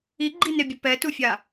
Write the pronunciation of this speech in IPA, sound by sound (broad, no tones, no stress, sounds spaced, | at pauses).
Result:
i ɡ͡ǃ i n e bʲ ʊ p ɛ t u fʲ a